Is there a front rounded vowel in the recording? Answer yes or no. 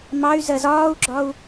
yes